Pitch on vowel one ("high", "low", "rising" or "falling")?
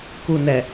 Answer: low